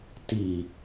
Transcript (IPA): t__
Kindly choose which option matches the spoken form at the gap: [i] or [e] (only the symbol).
i